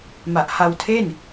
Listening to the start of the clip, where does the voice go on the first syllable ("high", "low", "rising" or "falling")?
low